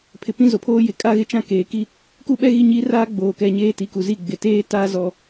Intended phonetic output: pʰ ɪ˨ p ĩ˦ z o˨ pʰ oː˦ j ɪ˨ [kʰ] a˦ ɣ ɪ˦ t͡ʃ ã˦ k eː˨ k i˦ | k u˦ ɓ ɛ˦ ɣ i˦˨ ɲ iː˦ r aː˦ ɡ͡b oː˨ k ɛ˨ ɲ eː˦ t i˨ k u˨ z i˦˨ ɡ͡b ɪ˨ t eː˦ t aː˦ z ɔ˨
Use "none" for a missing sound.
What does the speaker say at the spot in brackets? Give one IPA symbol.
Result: kʼ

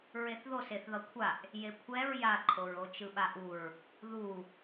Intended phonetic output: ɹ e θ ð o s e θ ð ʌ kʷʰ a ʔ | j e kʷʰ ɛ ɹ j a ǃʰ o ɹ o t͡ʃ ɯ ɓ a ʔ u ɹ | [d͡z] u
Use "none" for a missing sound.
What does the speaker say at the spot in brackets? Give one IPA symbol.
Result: ð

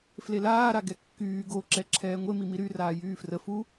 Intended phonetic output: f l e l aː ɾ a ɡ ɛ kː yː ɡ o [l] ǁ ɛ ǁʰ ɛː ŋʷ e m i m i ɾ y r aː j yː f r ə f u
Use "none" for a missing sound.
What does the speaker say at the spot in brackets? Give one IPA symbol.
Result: none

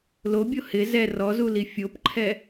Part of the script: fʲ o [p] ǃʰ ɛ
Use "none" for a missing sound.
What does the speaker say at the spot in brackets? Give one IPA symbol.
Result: p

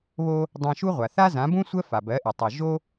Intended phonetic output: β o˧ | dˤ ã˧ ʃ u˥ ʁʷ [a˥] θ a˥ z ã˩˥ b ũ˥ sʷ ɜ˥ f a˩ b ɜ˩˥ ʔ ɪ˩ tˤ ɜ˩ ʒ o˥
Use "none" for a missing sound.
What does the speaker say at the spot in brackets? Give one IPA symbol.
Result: a˩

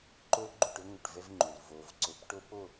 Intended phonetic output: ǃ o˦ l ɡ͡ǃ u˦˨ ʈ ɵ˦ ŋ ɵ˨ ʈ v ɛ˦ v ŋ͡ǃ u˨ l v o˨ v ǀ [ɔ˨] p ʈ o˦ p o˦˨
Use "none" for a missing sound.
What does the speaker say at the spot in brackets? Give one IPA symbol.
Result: ɵ˨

